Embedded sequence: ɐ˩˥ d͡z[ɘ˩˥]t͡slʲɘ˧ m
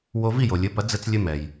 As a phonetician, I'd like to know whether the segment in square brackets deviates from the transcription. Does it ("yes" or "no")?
yes